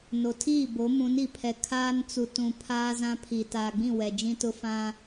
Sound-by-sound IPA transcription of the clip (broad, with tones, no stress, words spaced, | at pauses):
no˨tʰiː˦˨bo˨˦ mũ˨˦n i˨pʰɛ˨ kʰaː˦n t͡su˨tũ˨ pʰaː˦zã˦pʰi˨ taː˨ɡ͡bĩ˦˨ wɛ˨d͡ʒĩ˦tʊ˦ fã˦